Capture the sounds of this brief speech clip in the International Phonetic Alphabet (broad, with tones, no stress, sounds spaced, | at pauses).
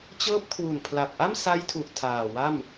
t͡ɕ ɤː˦˥ p̚ kʰ w u˨˩ n pʰ l a˨˩ p̚ ʔ a˥˩ m s a˦˥ j tʰ u˨˩ ʔ tʰ aː˨˩ w a˥˩ m